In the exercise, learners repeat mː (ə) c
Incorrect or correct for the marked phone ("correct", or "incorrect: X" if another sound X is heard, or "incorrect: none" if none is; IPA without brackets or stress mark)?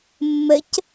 correct